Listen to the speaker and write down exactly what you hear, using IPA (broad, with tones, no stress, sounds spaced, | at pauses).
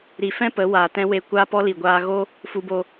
ɾ i˨ f ɛ̃˦ p ə˨˦ w aː˨ t ɛ̃˦ w e˧ kʷ aː˦ p ɔ˦ l i˨ ɡʷ aː˧ ɣ o˦ | f u˧ b o˧